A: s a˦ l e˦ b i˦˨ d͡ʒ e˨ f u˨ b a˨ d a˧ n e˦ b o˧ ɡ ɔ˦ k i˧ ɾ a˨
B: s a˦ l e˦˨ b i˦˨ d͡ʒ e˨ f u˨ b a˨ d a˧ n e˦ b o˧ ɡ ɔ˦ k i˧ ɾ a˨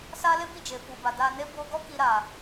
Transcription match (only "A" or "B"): A